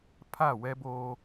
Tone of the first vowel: falling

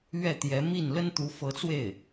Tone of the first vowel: falling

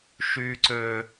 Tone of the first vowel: high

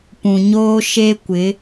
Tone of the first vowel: low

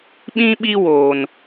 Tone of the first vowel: high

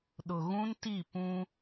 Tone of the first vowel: low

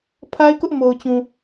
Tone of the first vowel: high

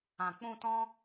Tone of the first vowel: low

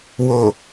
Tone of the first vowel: low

